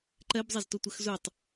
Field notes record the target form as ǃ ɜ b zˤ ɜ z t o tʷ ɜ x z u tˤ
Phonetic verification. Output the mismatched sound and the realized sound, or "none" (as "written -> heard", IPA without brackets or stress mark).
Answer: none